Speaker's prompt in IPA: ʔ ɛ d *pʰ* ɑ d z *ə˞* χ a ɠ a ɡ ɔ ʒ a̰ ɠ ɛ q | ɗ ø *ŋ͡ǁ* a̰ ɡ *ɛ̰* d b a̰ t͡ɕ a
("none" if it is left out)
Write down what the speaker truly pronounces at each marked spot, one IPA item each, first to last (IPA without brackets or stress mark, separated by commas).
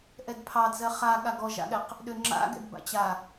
pʰ, ɜ, ŋ͡ǁ, ɛ̰